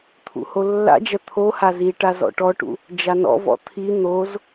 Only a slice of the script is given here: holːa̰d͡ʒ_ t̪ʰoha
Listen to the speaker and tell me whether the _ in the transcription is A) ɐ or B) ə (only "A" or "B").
A